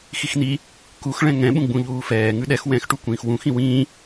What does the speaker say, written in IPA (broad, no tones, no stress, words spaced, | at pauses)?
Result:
xixni | kux ɭɛ̃ŋɛ̃ ɓũɡ͡bũʎuːfɛː ŋʉɗɛx wɛ̃xʈu kʷĩːxwũxĩ wĩː